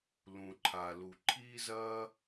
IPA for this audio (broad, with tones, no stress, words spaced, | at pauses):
lũ˩ǃʰa˩ lu˩ ǃʰiː˥zɐː˥